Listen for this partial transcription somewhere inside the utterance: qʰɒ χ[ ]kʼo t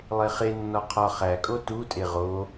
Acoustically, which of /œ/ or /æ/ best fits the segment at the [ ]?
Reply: æ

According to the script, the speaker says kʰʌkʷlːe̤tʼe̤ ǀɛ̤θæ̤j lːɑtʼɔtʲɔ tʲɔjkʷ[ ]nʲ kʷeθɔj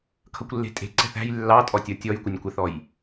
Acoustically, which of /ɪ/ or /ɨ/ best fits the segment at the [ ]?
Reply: ɪ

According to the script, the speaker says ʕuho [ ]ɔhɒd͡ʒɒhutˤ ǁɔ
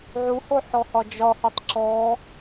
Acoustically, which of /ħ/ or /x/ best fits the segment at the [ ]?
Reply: ħ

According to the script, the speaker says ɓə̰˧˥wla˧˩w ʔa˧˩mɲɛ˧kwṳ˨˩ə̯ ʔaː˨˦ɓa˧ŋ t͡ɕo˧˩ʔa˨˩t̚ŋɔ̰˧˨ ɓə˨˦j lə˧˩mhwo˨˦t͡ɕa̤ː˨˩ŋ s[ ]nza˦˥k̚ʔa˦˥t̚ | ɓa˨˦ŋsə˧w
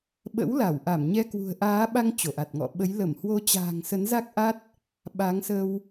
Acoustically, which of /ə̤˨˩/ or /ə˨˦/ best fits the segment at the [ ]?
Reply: ə˨˦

